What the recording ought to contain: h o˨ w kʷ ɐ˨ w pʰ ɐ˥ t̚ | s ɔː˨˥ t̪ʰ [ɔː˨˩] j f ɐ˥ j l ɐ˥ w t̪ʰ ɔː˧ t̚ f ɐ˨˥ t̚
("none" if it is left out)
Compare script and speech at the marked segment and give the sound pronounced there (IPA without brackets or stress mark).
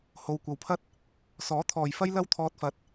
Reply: ɔː˨˩